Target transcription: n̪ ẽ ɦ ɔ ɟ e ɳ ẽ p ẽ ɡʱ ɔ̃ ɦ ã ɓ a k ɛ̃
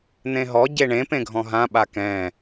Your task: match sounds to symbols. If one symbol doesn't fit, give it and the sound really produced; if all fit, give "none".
none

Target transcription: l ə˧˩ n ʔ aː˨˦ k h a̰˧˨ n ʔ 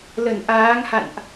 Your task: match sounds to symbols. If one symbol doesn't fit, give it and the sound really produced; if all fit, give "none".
k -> ŋ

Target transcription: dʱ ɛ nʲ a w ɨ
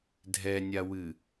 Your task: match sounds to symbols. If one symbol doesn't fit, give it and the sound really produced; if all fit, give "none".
none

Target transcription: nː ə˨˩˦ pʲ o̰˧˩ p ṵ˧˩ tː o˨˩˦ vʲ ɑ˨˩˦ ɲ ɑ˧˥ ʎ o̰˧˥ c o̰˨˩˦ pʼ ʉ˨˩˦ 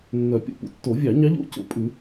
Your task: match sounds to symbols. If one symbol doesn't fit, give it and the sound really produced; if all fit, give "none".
ə˨˩˦ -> œ˨˩˦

